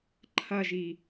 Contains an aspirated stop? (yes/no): yes